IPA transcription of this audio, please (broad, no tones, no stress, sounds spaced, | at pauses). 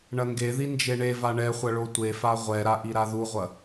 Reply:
ɳ ɐ ŋ ɡ e ð i n d͡ʒ e ɳ e v a ɳ ɛ χʷ ɐ ɭ o tʷ e f a ʁʷ ɛ ɾ a ʔ i ɾ a ð u ʁʷ ɐ